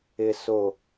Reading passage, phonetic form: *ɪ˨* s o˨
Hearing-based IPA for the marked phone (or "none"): ɪ˨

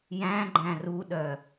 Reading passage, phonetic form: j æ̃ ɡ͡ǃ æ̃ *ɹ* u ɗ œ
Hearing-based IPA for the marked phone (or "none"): r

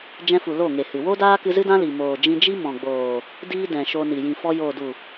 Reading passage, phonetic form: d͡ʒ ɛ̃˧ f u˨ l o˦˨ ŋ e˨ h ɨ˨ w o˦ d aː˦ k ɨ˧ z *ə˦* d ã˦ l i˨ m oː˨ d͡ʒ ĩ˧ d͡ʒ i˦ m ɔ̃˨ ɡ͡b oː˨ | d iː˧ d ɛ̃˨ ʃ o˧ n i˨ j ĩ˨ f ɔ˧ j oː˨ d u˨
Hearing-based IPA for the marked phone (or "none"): ɨ˦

